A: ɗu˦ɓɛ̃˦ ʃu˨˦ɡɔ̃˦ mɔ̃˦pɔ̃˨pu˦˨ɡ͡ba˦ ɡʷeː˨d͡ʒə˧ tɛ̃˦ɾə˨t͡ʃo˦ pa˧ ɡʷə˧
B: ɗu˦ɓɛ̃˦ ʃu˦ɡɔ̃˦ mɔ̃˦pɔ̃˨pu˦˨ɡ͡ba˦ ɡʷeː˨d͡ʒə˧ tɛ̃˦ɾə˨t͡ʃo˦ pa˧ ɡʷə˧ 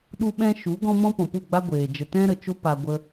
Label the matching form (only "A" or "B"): A